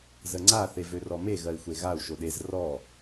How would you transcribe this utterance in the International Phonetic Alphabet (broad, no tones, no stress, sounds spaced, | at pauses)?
z ə ŋ͡ǀ a θ e v ø r ɔ m e ɣ ɜ i̯ xʷ e ɣ a u̯ ʃ o ɗ e z r ɔ